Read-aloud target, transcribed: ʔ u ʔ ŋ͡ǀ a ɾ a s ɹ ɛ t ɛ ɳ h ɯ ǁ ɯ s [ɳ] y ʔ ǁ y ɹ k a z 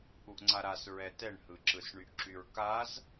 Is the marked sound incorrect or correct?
correct